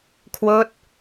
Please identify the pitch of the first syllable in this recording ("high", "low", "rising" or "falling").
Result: falling